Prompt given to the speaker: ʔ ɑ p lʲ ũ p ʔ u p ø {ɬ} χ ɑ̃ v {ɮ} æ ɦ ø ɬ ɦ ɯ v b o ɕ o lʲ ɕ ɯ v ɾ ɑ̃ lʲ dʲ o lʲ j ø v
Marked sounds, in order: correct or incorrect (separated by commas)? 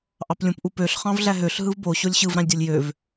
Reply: correct, correct